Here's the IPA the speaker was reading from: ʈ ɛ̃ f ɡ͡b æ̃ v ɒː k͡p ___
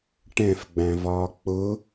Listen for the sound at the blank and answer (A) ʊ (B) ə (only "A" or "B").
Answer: A